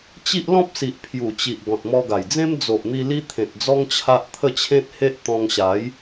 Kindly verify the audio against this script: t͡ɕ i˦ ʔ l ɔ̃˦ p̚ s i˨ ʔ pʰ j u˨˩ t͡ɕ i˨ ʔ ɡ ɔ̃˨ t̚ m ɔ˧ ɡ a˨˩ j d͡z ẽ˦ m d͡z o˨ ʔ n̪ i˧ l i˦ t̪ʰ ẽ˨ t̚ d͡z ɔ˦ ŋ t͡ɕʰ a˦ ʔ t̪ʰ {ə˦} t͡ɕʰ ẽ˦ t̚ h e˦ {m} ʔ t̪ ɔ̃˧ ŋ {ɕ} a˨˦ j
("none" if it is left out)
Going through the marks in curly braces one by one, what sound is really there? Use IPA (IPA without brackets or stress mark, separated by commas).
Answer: ə˥˧, none, ɕ